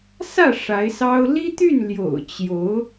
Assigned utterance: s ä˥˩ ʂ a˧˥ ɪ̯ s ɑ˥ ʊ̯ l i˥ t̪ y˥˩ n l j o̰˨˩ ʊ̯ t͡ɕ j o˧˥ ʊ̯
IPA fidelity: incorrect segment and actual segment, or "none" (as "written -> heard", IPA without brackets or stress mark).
none